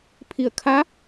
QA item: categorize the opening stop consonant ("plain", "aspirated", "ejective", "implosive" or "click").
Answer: aspirated